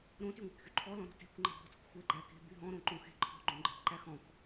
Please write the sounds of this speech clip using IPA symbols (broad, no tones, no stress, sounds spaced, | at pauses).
ɾ õ t y ŋʷ æ̤ k x y ǃʰ ɔ l ɔ̃ ɾ ɔ̤ t e̤ kʷ ŋ͡ǃ æ̤ b ɔ̤ t o̤ k xʷ e ɡ͡ǃ æ k e̤ b y ɦ ɔ̃ ɾ õ ǃ õ x e̤ ǃʰ ɔ̤ ɡ͡ǃ õ ɡ͡ǃ e̤ b ǃ æ x ɔ̃ k